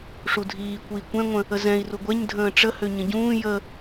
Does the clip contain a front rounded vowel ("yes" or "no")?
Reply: yes